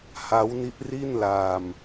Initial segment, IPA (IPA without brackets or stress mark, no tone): h